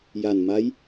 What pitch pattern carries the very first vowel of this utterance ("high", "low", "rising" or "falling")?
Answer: low